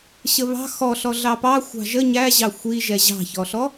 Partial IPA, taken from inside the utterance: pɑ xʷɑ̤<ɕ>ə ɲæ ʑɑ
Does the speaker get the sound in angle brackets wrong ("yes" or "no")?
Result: yes